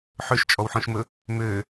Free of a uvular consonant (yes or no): yes